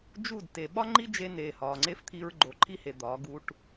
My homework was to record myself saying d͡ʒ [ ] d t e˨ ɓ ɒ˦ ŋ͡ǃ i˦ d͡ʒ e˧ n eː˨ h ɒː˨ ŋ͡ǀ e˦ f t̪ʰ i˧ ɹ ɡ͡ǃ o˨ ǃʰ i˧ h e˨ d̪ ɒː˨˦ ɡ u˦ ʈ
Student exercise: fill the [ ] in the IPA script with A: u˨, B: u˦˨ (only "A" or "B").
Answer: B